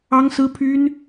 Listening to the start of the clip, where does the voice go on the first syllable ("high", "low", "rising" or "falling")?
high